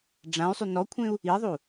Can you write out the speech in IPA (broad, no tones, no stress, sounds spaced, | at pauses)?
ɖ͡ʐ ã y̯ sˤ y n ɔ kʷʰ ẽ u̯ | i ðˤ u